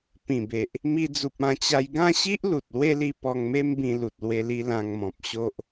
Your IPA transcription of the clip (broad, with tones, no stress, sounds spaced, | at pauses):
p ĩ˨˩ b e˨ ʔ | m i˧ d͡z u˨ p̚ ã˧ t͡ɕ a˧ j ɡ ã˥˧ ɕ i˦ ʔ l u˨ t̚ l w e˦ l i˧ p ɔ˧ ŋ m e˦ m b ĩ˧ l u˨ t̚ l w e˧ l i˧ l ã˧ ŋ m ɔ̃˨ p̚ ɕ o˦ ʔ